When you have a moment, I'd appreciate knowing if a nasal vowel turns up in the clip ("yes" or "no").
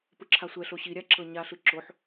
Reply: no